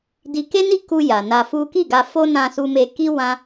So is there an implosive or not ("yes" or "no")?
no